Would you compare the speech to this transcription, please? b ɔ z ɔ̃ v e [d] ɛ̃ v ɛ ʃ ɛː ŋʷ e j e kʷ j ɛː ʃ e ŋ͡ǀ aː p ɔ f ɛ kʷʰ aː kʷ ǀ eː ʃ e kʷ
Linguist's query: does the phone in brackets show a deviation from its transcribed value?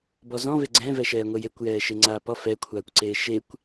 yes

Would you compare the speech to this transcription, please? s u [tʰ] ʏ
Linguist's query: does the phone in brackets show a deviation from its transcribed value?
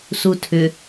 no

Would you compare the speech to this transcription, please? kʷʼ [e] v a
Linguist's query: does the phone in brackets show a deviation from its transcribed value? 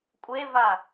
no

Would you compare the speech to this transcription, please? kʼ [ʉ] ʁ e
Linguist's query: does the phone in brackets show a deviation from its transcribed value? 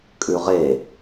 no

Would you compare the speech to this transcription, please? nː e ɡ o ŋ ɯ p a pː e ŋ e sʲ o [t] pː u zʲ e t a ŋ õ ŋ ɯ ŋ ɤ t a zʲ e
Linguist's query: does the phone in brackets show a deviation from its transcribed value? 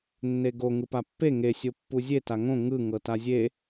yes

